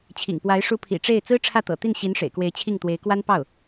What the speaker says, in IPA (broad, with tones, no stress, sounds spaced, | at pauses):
t͡ɕʰ ḭ˨˩ ŋ p w a˧˥ ɪ̯ ʂ u˧˥ pʰ ḭ˨˩ ʈ͡ʂ e˥˩ ɪ̯ t͡s ɹ̩˥ ʈ͡ʂʰ ä˥˩ t̪ ɤ̰˨˩ t̪ i˥˩ n ɕ i˧˥ n ʂ ḛ˨˩ ɪ̯ k w e˧˥ ɪ̯ t͡ɕʰ i˥˩ ŋ t̪ w e˧˥ ɪ̯ k w a˥ n p ɑ˥˩ ʊ̯